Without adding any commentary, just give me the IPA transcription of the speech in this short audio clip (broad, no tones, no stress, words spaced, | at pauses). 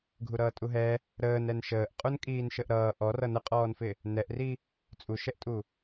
ɡʱuɾʌːtʼuɦɛ | ɾəːnɛn ʃəːʔqʼun kʼiːnʃəʔɾʌː ʔɔ rʌnəqʼɔːnfɪ | nɛʔri | t͡sʼuʃɛʔtʼu